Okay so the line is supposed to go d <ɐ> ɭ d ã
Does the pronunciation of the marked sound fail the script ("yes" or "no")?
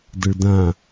no